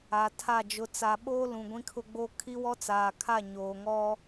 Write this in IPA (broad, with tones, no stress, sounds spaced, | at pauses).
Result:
a˨ tʰ a˦˨ d͡ʒ ʊ˨ t͡s a˨ ɓ oː˦ l ũ˨ ɡʷ ĩ˦ kʰ ʊ˦ ɡ͡b o˦ kʰ i˦ w ɔ˦ t͡s aː˨ kʰ a˦˨ ɲ oː˨ ŋ ɔ˦